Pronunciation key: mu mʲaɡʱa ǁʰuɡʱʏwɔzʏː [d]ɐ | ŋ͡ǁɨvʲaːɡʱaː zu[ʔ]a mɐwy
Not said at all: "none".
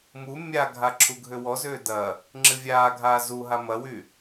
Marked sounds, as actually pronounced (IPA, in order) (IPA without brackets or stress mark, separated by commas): d, ɦ